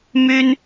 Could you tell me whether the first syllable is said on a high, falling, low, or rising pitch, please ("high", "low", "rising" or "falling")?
high